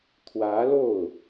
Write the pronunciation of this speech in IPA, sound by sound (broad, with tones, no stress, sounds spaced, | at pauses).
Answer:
t̪ʰ w ä˧˥ l o˥˩ ʊ̯